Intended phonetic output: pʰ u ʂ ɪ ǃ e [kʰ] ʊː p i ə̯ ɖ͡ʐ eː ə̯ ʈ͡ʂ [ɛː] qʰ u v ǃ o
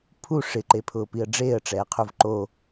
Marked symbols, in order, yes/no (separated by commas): no, yes